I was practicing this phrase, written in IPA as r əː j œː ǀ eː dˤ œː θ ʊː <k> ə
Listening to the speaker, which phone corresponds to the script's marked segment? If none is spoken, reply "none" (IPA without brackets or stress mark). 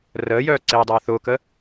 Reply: k